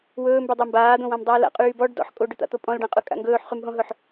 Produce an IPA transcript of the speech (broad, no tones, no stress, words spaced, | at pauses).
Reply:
wɵːmbydˤɵ mbaːd̪õwãmdˤɵː la̰qʼyː bɔɖ dɔ̰ħ kʼoɖɵt̪a̰t̪o pʼɔ̃lɖãqʼɵkʼa̰ ŋɡɵːħχymɦõɦɵħ